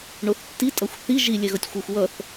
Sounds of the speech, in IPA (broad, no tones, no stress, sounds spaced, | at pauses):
ɳ o θ tː i tʼ ʌ xʷ θ i ʒ i lʲ ɛ ɣ ʌ tʲ xʷ ɯ xʷ w ʌ θ